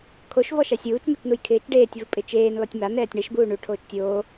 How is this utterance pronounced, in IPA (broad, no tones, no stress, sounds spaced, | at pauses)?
kʰ o ʃ v ɔ ʃ a sʲ uː t͡ʃ m u t͡ʃ n u j kʰ ɪː t͡ʃ ɖ eː tʲ v u pʼ ɪ t͡ʃ eː n l ɔ tʲ m a n ɛː tʲ ɳ ɛ ʃ b uː ɳ u ʈʰ oː t͡ʃ tʲ oː